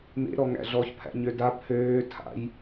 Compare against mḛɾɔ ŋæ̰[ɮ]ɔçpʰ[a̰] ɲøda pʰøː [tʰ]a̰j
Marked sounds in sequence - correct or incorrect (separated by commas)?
correct, incorrect, correct